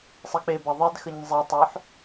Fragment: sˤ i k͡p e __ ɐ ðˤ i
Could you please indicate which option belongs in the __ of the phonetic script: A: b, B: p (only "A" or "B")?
A